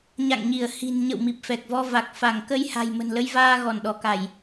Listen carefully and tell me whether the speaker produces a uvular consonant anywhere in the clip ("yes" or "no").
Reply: no